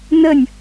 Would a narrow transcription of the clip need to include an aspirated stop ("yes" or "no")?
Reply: no